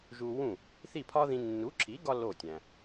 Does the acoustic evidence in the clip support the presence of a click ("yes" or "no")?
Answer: yes